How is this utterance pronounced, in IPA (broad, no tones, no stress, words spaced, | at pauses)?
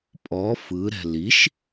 pʼɔ fɯɾɛ̤ liʃ